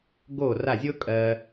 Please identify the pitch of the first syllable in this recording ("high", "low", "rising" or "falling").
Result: falling